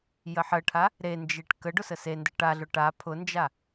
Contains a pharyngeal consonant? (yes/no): yes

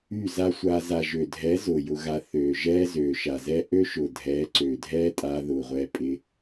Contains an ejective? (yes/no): yes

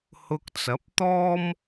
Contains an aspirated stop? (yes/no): no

